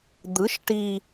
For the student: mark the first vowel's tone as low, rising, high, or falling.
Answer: rising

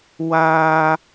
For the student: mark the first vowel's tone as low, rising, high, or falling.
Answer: high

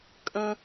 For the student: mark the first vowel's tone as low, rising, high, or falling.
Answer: high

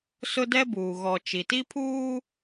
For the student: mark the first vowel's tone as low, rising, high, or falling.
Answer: high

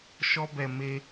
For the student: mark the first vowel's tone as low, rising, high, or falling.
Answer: high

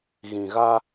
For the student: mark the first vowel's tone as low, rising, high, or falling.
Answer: low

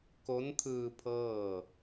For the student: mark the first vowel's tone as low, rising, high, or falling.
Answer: rising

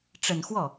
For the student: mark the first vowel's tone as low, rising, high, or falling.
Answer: low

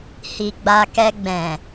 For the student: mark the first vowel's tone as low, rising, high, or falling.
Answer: low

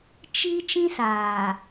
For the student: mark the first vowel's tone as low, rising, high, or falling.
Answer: high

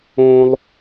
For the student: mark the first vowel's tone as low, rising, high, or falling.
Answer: high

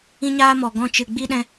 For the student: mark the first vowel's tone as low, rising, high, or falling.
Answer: high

